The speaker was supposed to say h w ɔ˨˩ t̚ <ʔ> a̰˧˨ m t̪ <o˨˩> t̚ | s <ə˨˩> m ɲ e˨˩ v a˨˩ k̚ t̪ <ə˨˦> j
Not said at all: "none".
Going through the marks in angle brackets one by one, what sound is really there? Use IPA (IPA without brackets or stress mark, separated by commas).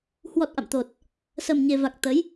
ʔ, o˨˩, ə˨˩, ə˨˦